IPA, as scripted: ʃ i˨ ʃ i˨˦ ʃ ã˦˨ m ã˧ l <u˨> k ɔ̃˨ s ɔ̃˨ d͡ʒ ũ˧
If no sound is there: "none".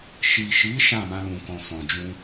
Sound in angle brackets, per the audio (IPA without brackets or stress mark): ũ˨